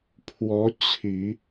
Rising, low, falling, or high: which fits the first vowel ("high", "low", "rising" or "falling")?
rising